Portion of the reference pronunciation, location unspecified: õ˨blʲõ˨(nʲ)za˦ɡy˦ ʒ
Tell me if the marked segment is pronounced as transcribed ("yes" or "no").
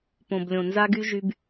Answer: no